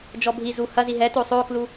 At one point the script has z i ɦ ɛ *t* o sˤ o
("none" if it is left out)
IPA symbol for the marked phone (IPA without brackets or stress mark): t